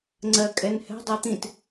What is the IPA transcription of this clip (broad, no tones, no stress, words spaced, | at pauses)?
ŋ͡ǀɜ kʼɛnhɛ̤ dˤɜt̪ĩt